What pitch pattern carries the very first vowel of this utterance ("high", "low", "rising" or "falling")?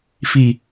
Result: low